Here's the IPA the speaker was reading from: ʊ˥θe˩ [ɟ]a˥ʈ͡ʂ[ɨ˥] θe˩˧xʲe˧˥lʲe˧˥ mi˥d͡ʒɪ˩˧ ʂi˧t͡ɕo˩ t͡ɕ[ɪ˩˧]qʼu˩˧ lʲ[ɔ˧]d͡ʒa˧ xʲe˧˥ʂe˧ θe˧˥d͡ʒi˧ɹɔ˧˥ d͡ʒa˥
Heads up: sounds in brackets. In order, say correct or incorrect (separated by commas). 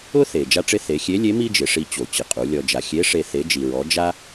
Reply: incorrect, incorrect, correct, correct